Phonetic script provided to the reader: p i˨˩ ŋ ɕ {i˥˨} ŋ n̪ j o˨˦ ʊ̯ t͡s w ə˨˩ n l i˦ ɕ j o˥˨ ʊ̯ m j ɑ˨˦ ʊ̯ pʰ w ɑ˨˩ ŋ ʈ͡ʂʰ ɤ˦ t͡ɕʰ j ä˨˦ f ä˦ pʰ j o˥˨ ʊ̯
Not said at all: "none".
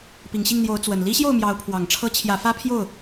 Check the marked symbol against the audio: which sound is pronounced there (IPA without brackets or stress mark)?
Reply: i˥˨